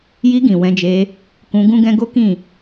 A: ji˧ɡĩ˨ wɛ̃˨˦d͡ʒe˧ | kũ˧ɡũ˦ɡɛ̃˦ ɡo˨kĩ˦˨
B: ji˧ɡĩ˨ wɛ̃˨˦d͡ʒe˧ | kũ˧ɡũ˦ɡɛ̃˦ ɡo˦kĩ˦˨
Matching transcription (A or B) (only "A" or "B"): B